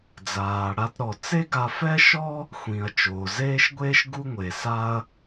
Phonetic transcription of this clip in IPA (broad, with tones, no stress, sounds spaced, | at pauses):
d͡z aː˩ ɽ a˧ t ɾ ɔ˩ t͡s e˥ ɡ a˧ f ɛ˥ ʃ ɔ˥ | xʷ ĩ˩ ɐ̯ t͡ʃ oː˩ z eː˥ ʃ ɡʷ eː˥ ʃ ɡ u˥ ŋʷ e˩ s a˥ ɐ̯